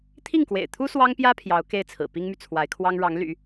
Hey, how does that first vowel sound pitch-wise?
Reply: falling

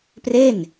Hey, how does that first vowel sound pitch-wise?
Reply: falling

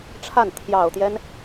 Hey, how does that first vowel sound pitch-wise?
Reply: falling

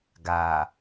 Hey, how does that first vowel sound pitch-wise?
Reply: low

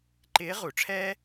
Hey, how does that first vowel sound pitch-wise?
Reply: rising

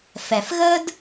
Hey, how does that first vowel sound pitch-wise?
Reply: low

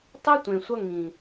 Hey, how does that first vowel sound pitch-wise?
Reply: high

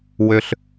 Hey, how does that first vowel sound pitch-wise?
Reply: low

